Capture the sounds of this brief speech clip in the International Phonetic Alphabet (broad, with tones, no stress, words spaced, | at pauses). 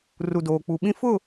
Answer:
ru˨doː˨k͡pu˨ɓĩ˦ fʊ˦˨